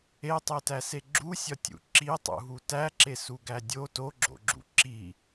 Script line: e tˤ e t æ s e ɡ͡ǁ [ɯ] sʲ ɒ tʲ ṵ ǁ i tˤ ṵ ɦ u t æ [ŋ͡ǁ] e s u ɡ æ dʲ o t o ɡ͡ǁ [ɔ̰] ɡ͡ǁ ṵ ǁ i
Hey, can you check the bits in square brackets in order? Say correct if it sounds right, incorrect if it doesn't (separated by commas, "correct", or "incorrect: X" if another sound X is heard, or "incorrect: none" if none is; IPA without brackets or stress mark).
incorrect: u, incorrect: ǁ, incorrect: o̰